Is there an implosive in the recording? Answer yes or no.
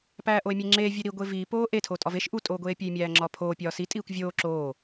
no